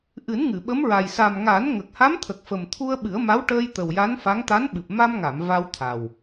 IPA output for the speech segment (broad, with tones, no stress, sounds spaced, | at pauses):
ʔ ɨ˨˩˦ n ŋ ɨ˨˩˨ ɓ ə˧˥ m ɹ a˨˩ j s a˨˩ m ŋ a˨˩˦ n ŋ ə˨˩ k̚ h a˧˥ m t̪ʰ ə˨˩ k̚ f ə˨˩ m t̪ʰ u˧ ə̯ ɓ ɨ˨˩˦ ə̯ m a˧˥ w ʈ əː˧ j t̪ ə˨˩ w j a˧˥ n f a˧˥ ŋ t̪ a˧˥ n ɓ ɨ˨˩ p̚ m a˧ m ŋ a˨˩˨ m v a˧ w t̪ʰ a˨˩ w